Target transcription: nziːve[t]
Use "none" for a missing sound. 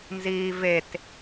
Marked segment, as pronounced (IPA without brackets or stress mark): t